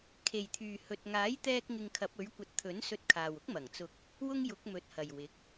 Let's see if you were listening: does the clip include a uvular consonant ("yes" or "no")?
no